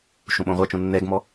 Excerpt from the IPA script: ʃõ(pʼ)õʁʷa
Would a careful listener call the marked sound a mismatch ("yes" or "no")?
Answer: yes